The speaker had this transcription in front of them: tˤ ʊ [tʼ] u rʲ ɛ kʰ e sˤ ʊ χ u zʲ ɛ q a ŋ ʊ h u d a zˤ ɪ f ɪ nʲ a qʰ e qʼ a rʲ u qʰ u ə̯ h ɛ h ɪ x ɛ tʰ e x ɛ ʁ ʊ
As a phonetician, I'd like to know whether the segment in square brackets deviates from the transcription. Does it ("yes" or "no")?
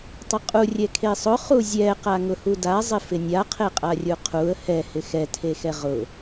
yes